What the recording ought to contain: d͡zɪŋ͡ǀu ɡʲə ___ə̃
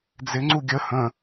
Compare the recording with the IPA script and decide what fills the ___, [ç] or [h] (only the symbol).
h